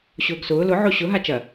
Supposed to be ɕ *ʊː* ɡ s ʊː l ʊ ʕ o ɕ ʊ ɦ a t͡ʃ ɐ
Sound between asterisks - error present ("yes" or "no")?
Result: no